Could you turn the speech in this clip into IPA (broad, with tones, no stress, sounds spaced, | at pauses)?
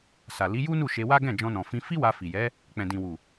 s a˨ l i˨˦ j u˦ n u˦˨ ʃ e˧ w a˦ ɡ ɛ̃˦˨ d͡ʒ ɔ̃˧ n ɔ̃˨ f ĩ˧ f i˦ w a˧ f i˨ j ɛ˨˦ | k͡p ɛ̃˨ d ĩ˨ w u˨